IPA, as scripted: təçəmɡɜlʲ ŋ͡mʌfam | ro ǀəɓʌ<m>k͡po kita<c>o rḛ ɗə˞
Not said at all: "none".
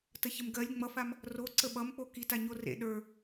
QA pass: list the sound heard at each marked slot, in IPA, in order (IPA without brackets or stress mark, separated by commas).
m, ɲ